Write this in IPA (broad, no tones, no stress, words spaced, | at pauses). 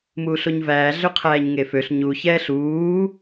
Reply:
muːɬoɲvæː ɮøqʰæːɲŋeføɬ ɲu çɛːɬuː